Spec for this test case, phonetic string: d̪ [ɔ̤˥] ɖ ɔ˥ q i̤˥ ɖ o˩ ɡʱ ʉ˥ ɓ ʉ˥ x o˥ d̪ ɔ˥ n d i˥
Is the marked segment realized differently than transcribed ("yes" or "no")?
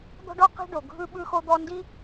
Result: no